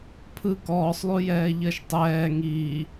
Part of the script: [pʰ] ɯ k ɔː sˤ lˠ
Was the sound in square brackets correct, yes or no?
yes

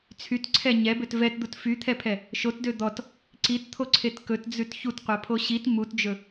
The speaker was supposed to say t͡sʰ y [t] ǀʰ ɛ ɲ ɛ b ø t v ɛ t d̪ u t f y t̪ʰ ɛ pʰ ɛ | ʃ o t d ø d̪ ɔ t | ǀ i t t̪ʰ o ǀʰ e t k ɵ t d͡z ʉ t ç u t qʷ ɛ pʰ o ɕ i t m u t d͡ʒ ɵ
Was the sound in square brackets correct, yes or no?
yes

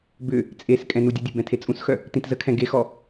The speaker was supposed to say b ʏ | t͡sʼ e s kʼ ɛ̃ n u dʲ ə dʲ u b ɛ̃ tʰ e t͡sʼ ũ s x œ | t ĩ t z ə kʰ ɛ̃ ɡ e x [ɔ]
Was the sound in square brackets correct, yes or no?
yes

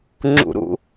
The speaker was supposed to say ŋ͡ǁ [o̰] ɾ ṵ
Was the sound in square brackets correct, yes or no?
no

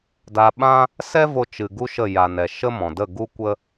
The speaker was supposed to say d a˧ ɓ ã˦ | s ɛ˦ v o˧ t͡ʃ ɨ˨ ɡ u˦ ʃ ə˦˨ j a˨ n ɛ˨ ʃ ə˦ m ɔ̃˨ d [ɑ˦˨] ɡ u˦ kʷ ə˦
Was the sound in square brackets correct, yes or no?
no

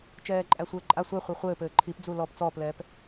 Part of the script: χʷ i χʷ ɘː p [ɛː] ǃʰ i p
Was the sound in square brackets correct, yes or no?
no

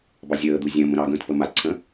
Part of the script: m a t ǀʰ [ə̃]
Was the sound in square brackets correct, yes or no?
yes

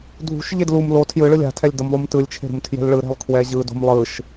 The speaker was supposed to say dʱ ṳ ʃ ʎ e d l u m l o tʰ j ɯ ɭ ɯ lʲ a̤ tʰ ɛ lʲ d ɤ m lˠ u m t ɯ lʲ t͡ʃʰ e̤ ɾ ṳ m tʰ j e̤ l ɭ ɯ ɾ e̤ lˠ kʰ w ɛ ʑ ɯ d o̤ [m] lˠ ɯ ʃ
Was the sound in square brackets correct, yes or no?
yes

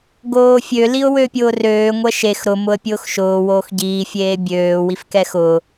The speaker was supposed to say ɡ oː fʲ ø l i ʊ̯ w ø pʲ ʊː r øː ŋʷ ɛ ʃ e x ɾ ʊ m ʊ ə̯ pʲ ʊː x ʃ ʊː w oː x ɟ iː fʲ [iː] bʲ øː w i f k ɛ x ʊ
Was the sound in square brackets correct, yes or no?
no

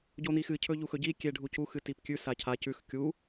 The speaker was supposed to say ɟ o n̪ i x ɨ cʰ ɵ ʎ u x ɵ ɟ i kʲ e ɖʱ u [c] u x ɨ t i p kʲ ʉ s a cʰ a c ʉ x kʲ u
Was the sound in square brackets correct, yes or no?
yes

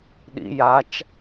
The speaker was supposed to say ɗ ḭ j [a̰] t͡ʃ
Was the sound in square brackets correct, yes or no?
no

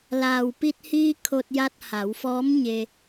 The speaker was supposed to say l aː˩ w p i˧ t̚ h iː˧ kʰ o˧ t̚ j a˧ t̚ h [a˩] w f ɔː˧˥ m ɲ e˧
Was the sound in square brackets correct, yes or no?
no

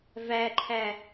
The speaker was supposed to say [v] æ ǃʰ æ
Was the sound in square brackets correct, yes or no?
yes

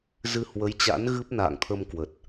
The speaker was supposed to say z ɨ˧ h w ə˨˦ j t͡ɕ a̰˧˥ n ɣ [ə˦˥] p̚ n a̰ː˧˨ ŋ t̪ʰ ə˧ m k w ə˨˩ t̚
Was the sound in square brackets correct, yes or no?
no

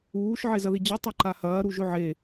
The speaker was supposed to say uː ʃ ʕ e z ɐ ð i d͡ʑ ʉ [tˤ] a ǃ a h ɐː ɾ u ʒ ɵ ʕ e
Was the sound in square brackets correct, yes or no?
yes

